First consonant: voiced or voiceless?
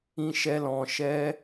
voiceless